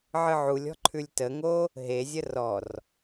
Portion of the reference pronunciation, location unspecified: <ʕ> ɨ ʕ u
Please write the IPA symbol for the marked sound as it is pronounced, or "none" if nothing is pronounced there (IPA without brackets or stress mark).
ʕ